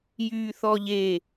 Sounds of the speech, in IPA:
j yː θ ɔ ʎ e

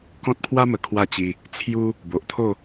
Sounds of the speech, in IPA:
k ɔ̃˦ t̚ pʰ w a˦ m ə˨˩ kʰ w a˥˧ t͡ɕ i˧ | t͡sʰ j u˦ | b o˨ ʔ t̪ʰ o˥˧

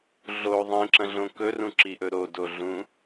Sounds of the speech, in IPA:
ɮ o ðˤ ĩ ǁ ɐ̃ ɮ õ k ɵ r ũ ǁ i ʔ ɵ ɾ o d o ɮ ũ

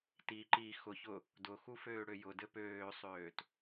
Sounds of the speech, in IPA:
t i ǃ i x ʊ ç ʊ | d ʊ x u f øː ɽ ø j ʊ d ɘ p øː sˤ øː t

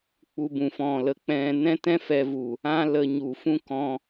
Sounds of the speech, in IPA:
k͡p u˧ b ũ˨ f ɔ̃˨ l ə˨ k͡p ɛ̃˧ n ɛ̃˦ t ɛ̃˦ f ɛ˧ v u˨ | ã˦ l ə˧ ɲ u˨ f ũ˦ k ɔ̃˧

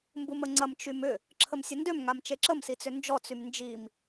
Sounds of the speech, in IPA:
m b u m ə ŋ͡ǀ ɐ m t͡ʃ y m ʏ | ǁʰ ə m sʲ ɐ n d ø m ŋ a m t͡ʃ e ǁ ə m s i t͡s ʏ n d͡ʒ ɔ t͡s y m n d͡ʒ i m

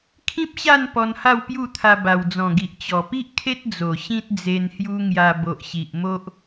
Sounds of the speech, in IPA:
kʰ ĩ˦ p̚ ɕ a˥˧ n p ɔ˧ n h a˥˧ w p j u˥˧ t̪ʰ a˧ b a˨˩ w d͡z ɔ̃˨˩ ɡ i˨ ʔ t͡ɕ ɔ˨˩ p i˦ ʔ kʰ e˦ t̚ d͡z o˨˩ ɕ ĩ˦ t̚ d͡z e˧ n h j u˦ ŋ j a˧ b o˨ ʔ ɕ i˨ ʔ m o˦ ʔ

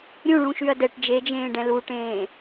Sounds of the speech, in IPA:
ɾʲ ũ ɭ ũ ʃ y ɐ̯ d ɛ ʈ d͡ʒ e d͡ʒ ẽː ɖ ɛ̃ l u ʈ ẽː

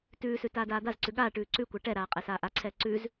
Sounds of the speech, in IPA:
t ʉː s ʉ t aː d aː d̪ a z ǀ ʉ ɠ aː ʈ ʉː ǀ ʉ kʷ a ʈ ɛ ɾ aː qʼ ɛ s aː ʔ a ǀʰ ɛː ǀ ʉ z

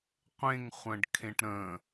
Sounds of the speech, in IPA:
qʷ ẽ ŋ χʷ ə̃ː ɖ kʰ ẽ ʈ ɾ ə̃

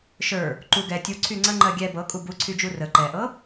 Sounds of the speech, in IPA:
ʃ ə˞ | ǃ u ɡ ɛ tʲ u ǀʰ y ŋ͡ǀ ə ŋ͡ǃ ɜ ɡʲ ɛ b ɤ kʼ u b u ǀʰ y d͡ʒ u r ə ǃ ɛ ʔ ɤ

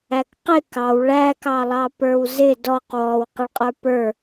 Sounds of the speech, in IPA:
æ k q ɪ k ɑ w ɭ æ k ɑ lˠ ɑ p ə˞ w z ɪ d ɔ q w ɔ w q ɪ ɭ qʼ ə˞ p ə˞

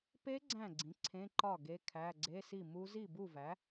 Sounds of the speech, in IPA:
p e˦˥ ɡ͡ǀ æ̃˥˩ ɡ͡ǀ ĩ˩˥ ǀʰ ẽ˧˥˧ ǃ ɒ˥˩ ɡ e˧˥˧ kʰ æ˧˥˧ ɡ͡ǀ e˧˥˧ s i˥˩ m u˦˥ z i˥˩ b u˥˩ v æ˩˥

